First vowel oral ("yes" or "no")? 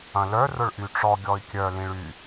no